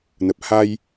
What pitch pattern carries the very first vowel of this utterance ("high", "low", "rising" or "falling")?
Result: low